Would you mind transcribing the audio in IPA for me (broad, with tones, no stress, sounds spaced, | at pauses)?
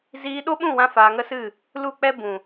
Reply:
z iː˧ ɗ o˦ ɓ ũ˦˨ w ã˧ f aː˧ ŋ ə˦ s ɨ˦˨ | l u˦˨ k͡p ɛ˦ b ũ˨